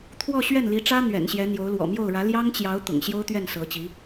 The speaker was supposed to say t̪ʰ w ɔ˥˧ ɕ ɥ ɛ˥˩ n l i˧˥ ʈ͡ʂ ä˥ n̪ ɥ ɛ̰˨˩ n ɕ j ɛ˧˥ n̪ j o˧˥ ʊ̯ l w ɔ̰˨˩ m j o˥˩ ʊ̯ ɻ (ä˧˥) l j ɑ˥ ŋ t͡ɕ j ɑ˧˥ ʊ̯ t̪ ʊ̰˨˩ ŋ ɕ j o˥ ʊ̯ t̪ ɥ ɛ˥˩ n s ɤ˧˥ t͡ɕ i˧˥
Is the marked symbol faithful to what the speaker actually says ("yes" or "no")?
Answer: yes